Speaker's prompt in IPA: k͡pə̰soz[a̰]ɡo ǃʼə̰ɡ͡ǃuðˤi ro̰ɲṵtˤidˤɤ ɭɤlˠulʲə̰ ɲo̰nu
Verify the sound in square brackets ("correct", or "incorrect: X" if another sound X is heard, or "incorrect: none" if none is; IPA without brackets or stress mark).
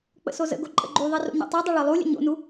incorrect: ə̰